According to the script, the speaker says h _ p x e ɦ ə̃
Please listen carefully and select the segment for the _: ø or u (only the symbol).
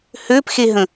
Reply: ø